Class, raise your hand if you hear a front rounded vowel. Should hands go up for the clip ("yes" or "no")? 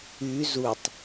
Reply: yes